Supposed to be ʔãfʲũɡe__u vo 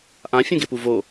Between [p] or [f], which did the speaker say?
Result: p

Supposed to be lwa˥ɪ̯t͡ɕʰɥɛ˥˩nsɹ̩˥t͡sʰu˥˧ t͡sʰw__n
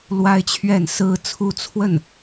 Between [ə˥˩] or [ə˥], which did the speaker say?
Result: ə˥˩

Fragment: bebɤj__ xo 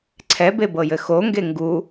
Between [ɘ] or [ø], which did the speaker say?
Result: ɘ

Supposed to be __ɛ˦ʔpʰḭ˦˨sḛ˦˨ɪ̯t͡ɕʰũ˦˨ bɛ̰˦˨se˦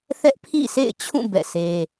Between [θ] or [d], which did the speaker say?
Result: θ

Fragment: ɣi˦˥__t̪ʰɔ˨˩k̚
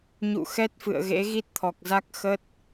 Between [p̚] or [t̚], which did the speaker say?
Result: t̚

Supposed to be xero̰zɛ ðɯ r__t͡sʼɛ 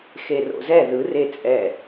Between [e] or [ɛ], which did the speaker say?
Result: e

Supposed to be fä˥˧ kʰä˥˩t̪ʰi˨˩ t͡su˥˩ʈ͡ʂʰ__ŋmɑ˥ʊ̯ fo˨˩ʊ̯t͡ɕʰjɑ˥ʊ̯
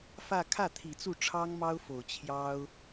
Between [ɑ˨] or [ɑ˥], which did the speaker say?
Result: ɑ˥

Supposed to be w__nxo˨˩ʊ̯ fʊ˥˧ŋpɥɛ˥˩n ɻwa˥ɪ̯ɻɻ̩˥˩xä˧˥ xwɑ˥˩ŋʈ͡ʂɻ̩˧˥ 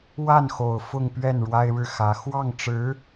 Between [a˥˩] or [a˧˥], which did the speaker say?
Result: a˥˩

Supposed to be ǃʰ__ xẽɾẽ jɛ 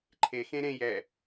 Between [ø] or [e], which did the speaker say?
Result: e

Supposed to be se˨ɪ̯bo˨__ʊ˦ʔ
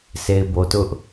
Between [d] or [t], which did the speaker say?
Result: t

